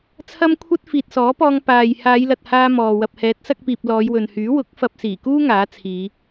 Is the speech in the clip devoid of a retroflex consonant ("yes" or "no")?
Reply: yes